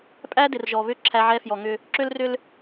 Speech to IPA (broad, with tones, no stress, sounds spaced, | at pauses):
pʼ æ˦ d ɪ˨ r ʒ ɔ˨ β ʏ˦˨ ǁʰ æ˦ ʕ ɛ˦ f j ɔ˨ ŋ ʏ˦ | ǁ ʏ˦ l r ʏ˦ l